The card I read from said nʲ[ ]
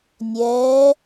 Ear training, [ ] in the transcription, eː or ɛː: ɛː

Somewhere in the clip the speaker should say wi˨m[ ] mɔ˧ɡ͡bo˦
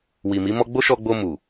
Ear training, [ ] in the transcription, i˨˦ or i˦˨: i˨˦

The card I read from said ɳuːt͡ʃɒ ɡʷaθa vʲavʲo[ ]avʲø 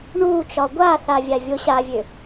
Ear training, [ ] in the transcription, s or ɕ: ɕ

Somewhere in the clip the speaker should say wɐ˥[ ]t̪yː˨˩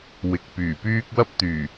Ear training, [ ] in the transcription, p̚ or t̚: p̚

